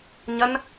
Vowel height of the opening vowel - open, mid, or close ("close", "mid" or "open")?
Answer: open